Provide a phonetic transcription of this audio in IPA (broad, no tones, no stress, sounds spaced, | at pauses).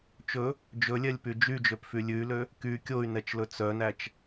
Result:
t͡ʃ ɵ | d͡ʒ ɵ lʲ ɛ lʲ p y d͡ʒ y d͡ʒ ø p f y lʲ ʉ y̯ l ø | k y kʲ o y̯ n ɛ t͡ʃ l ɵ t͡s œ n æ t͡ʃ